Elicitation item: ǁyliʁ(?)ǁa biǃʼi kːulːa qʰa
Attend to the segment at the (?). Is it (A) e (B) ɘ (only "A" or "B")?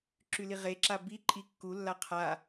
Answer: A